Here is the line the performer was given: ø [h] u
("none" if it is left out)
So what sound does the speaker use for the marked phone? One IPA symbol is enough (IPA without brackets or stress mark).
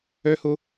h